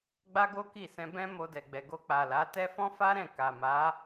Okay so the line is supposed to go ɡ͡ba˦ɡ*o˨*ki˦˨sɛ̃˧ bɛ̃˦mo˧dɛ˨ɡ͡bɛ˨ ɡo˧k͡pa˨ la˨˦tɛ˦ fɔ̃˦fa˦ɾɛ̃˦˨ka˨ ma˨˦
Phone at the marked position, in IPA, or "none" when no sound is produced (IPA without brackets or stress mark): o˦